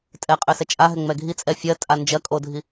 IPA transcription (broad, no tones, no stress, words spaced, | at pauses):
tʼɛqʼøsɛ t͡ʃʼaɦɛ ŋ͡mɛɡʱit͡sʼɛ fʲɜtʼa nd͡ʒɜkʼodʱi